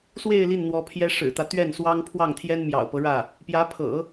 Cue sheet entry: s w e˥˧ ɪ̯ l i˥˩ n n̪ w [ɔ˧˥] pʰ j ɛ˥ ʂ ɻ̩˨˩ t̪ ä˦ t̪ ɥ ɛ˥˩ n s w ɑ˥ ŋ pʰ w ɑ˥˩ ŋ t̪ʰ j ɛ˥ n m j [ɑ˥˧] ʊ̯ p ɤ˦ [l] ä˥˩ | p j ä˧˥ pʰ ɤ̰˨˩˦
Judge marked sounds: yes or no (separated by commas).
yes, no, no